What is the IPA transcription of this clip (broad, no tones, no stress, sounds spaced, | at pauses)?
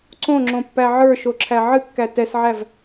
ǀ õ ŋ͡ǁ õ pː æ ʕ ə˞ ʃ o ǁʰ æ ʕ ɨ kː æ t ɛ s ʕ æ v